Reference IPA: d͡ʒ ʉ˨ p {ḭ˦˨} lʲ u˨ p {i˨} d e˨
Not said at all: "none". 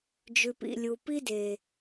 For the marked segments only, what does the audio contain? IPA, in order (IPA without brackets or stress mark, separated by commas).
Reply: ḭ˨, i˦